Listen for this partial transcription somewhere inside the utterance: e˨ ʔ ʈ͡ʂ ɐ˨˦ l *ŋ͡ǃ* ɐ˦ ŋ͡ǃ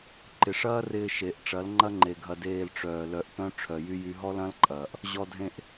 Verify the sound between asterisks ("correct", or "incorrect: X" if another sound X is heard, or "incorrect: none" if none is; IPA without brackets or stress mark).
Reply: correct